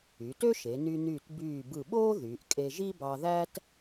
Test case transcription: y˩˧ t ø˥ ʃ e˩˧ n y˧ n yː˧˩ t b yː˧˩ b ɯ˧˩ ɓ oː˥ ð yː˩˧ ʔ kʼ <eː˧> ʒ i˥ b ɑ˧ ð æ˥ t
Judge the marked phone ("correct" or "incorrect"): incorrect